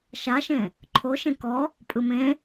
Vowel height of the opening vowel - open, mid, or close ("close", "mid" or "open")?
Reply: open